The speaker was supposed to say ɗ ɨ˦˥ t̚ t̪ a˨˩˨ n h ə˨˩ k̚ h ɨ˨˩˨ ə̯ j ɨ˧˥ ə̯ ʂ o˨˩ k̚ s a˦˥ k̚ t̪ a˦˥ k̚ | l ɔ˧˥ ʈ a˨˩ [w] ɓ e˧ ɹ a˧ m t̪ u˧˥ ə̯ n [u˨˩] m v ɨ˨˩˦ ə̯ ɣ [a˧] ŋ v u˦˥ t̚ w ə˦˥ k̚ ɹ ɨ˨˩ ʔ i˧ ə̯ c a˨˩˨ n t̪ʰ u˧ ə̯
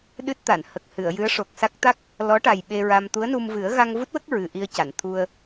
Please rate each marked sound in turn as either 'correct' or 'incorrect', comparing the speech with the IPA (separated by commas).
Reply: incorrect, incorrect, correct